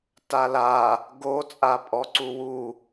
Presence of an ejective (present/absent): present